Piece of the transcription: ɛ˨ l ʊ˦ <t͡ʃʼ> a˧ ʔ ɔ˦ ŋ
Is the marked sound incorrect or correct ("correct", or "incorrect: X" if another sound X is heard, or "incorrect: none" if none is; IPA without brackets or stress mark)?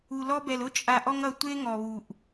correct